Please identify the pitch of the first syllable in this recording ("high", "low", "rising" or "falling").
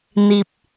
high